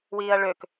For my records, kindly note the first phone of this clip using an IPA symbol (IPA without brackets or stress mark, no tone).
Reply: w